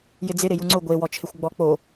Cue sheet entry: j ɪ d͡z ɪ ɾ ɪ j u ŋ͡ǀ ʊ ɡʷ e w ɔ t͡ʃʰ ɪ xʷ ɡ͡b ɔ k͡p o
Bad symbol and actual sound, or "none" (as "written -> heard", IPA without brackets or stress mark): none